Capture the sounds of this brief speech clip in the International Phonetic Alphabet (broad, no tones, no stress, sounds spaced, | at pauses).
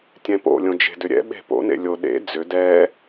tʲ ɛ̃ p o̰ lʲ õ d͡ʒ e̤ d ʏ ɾʲ ɛ̰ ɓ e̤ p o̰ n ḛ lʲ o ɗ ḛ d͡z ʏ d ɛ